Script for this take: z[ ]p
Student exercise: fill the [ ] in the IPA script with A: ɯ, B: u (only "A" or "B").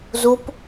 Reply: B